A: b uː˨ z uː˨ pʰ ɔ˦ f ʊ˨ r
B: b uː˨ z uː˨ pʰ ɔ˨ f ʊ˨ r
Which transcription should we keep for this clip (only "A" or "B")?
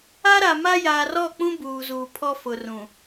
A